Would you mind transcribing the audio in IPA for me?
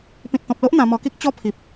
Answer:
pĩ˨t̚t̪ɔ̃˨p̚lo˦ʔ n̪ã˧mɔ˧ki˦k̚ t͡ɕɔ˧ pʰi˨p̚

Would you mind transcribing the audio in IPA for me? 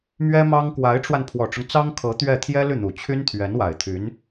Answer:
mɥɛ˥mɑ˥ŋ kwa˧˥ɪ̯ʈ͡ʂwa˧n pʰwɔ˨˩ʈ͡ʂʊ˦ŋ t͡sɑ˥ŋkʰɤ˧˥ t̪ɥɛ˥˩ t̪ʰjɛ˥ly˥˩n̪u˨˩ t͡ɕʰy˥nt̪ʰɥɛ˧˥nwa˨˩ɪ̯ t̪ʰy˧˥n

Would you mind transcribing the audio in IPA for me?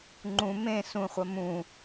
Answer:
ŋ͡ǃũ mẽ sũχʷɐ mũ

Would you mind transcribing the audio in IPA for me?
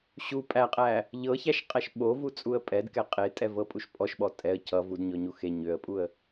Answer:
ɕu pʼæqʼæ | ʎɤçæʃqʼæʃ ɓovut͡sʼuə̯ pʼɛdkɛ qʼetʼɛvɤpʼuʃ pʼɔʃɓɔ tʼɛə̯ cʰʌ vudɲɔɲu xe ɲøə̯pʼuə̯

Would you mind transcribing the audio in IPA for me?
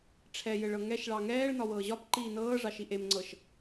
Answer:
ʈ͡ʂʰɛjɘɭɤ ŋɛʃɭɑ ŋɛːɭ nɒwɤːʑɒpǃiː nɤːʐɑʃi ʔemŋ͡ǀɤʃ

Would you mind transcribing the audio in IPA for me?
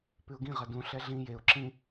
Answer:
pʉʊ̯ɡĩ ʁɐdũ ɬɛɮĩ jeʊ̯ ǁĩ

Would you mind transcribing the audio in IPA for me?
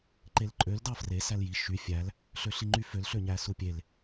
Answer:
ǃelǃʼøl dɑfre sælji ʃy fʲæl | ɬøɬiŋ͡ǃyføl ɬøɲæsupʲel

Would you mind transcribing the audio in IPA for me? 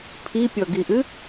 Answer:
pʰipʲɔɡiʔɨ

